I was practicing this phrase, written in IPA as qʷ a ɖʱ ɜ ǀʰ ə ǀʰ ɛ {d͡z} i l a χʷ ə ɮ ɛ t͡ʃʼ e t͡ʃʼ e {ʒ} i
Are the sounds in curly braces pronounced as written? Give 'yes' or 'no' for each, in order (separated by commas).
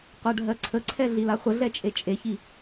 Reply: no, no